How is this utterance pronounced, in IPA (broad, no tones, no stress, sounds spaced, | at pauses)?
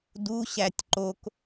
d u ɕ æ tʲ ǃ o k